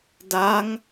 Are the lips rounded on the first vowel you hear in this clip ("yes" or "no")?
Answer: no